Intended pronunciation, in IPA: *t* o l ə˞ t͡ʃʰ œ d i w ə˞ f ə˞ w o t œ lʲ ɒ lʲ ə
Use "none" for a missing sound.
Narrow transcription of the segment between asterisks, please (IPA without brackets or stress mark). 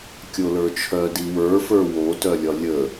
kʲ